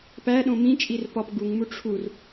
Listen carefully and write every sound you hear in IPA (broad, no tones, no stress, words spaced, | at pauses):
pæɗõ mĩt͡ʃʼir pɒp ɡuŋmu ʈ͡ʂʰur